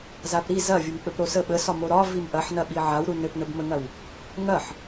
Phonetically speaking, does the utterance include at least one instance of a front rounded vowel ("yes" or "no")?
no